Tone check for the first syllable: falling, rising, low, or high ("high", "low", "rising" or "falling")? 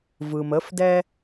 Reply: low